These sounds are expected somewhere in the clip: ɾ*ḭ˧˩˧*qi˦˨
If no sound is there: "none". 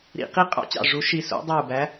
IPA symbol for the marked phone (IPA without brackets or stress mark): ḭ˧˩˧